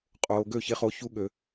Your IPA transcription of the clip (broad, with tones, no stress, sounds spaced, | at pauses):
qʼ oː˨ ɡ ø˦˨ ç e˧ χ o˧ ç u˦ ɠ ø˨